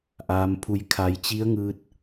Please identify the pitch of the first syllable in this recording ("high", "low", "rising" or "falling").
low